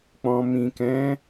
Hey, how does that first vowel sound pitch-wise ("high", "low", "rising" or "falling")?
low